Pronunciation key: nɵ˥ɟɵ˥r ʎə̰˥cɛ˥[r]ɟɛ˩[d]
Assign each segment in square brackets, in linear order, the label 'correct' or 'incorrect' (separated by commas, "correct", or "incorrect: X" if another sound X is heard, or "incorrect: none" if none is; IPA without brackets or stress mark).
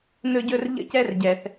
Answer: correct, incorrect: θ